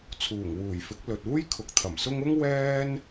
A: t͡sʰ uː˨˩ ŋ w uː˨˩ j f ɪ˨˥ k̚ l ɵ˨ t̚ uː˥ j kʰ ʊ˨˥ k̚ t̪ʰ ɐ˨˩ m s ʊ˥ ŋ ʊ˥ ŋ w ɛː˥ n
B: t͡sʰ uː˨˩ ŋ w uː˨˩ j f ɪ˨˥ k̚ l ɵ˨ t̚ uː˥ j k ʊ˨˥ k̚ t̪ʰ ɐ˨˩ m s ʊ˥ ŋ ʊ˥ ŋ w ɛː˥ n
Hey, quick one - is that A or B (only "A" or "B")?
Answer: A